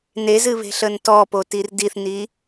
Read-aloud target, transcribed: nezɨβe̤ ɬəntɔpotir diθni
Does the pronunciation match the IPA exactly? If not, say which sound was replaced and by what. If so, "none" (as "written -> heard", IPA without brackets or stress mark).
none